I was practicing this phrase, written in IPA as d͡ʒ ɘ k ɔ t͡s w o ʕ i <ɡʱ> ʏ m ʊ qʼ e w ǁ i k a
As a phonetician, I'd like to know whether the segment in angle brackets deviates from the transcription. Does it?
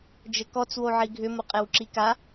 no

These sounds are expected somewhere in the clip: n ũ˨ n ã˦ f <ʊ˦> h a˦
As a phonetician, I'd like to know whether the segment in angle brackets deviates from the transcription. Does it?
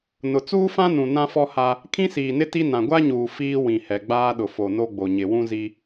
yes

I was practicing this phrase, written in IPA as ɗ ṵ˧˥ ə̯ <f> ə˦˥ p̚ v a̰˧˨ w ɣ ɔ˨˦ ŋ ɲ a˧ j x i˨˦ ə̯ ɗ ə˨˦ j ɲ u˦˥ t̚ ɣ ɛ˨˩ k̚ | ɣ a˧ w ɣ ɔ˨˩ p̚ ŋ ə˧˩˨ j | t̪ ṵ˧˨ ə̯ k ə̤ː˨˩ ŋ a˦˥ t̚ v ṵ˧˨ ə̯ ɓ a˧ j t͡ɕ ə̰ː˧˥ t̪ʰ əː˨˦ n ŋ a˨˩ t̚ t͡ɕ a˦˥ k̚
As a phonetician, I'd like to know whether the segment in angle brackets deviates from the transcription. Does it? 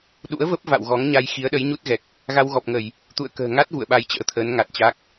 yes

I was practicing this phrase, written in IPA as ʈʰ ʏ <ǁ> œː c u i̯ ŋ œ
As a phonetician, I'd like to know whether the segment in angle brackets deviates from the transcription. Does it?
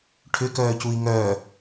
yes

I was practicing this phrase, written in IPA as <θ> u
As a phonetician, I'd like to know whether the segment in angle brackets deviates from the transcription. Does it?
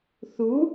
no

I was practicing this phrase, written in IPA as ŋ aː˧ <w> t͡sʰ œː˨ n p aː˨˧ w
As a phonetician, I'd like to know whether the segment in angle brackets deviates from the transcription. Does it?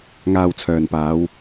no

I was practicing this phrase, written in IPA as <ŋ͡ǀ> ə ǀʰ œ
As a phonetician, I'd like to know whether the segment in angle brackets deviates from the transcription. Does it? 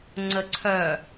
no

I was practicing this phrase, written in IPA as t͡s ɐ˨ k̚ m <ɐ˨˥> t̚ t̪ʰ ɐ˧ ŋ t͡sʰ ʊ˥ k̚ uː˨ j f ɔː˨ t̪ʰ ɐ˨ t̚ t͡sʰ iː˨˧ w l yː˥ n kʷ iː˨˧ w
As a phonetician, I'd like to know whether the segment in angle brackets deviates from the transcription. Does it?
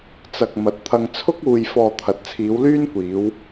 no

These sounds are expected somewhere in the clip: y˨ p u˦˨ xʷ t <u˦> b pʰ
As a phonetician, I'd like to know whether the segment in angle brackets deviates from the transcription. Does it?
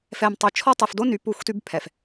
yes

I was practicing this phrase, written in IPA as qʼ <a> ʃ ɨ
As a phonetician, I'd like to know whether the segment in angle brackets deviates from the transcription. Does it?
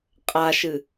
no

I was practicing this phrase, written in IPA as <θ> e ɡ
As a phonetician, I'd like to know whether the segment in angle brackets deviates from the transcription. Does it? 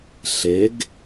yes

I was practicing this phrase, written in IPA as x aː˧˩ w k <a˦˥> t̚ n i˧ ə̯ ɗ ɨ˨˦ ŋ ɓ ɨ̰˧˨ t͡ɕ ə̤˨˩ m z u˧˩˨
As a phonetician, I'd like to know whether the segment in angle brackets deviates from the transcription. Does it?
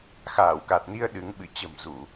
yes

